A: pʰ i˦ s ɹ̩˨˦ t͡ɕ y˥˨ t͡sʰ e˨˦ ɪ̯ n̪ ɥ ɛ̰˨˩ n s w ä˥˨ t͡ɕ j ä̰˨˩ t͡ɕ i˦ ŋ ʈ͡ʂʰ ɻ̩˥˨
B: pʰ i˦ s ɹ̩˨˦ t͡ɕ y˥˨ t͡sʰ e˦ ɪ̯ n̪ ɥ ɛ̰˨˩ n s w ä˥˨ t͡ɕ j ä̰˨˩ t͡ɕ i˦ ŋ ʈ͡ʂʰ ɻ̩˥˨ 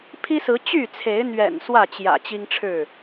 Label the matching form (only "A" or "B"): A